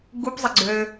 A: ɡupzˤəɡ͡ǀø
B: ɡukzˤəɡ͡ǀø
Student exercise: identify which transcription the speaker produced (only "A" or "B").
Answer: A